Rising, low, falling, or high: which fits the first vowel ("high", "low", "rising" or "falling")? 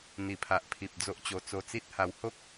low